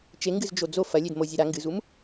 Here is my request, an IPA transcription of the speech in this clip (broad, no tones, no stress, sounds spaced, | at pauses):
t͡ʃ e ŋ ɡ ɨ z d͡ʒ o d͡z o f ɐ lʲ e d m o zʲ e ɾ a ŋ ɡ ɨ z u m